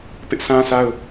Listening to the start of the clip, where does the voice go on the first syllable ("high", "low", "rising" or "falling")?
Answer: high